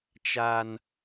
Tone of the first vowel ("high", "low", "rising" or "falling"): high